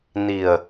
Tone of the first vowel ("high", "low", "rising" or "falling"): low